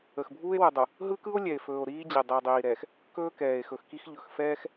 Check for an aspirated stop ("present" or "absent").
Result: absent